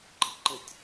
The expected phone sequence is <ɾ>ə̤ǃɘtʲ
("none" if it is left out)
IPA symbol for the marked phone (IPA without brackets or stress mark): ǃ